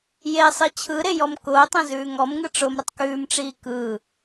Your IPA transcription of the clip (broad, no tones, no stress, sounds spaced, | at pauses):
j e sˤ i t͡ɕʰ ɯ ɾ e j ɔ m k ʊː tˤ ɛ̃ z ʉː ŋ ɔ m ŋ ɯ ʈ͡ʂ ʊ m ɾ ə tˤ k ʉː m ʈ͡ʂ iː k ɯ